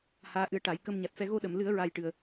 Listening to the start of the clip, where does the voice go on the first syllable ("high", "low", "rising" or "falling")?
rising